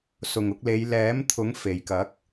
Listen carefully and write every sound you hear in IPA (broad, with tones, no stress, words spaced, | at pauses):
sʊ˨˩ŋʊ˧k̚le˨˧j lɛː˨˥mt̪ʰʊ˨˥ŋ fe˨˩jkɐ˨˥k̚